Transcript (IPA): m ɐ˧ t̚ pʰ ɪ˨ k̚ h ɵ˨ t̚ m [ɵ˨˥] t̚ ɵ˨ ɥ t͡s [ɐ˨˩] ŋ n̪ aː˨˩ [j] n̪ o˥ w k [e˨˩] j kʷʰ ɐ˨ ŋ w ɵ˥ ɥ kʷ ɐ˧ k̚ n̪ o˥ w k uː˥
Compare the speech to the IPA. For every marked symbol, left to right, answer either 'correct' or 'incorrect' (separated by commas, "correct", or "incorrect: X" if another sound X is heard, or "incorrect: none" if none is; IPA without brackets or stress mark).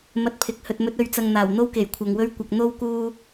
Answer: correct, incorrect: ɐ˨, incorrect: w, correct